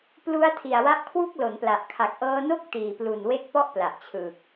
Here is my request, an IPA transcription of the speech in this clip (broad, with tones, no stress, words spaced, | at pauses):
plu˧a̯ tʰi˨˩a̯wa˦˥ʔkʰwu˥˩k̚ lo˩˦npla˨˩ʔ kʰa˨˩k̚ʔɤː˧no˥˩k̚ tiː˨˩plu˨˩nwe˦˥k̚pɔ˥˩ʔ pla˨˩ʔt͡ɕʰɯː˨˩k̚